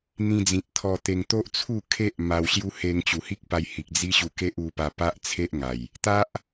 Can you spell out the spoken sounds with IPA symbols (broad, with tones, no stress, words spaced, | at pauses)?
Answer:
n̪ĩ˧d͡zĩ˨t̚ t̪ʰɔ˧t̪e˧ŋ t̪o˦ʔt͡sʰu˥˧kʰe˦ʔ ma˧wɕju˦ he˧ŋt͡ɕu˨˩hi˦k̚pa˧j hi˨k̚d͡zi˦ɕu˧ ke˦ʔu˧pa˧ pa˦ʔt͡sʰe˦ʔŋa˨˩j | t̪a˦ʔ